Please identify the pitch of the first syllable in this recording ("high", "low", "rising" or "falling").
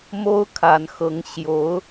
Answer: high